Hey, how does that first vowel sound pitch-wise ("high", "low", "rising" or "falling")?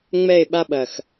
falling